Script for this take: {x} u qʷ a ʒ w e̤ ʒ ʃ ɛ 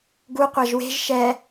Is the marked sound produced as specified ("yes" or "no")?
no